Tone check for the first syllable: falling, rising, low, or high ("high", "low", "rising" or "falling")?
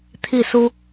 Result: falling